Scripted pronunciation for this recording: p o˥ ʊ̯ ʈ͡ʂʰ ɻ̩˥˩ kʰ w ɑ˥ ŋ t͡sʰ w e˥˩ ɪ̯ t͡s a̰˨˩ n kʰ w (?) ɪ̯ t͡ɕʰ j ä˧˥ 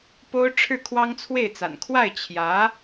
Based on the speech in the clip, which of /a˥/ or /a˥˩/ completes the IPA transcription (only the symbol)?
a˥˩